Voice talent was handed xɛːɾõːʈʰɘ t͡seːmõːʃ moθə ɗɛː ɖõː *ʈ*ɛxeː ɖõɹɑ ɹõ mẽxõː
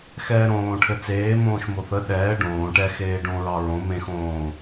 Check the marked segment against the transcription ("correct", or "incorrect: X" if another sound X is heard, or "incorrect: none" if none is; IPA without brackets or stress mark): correct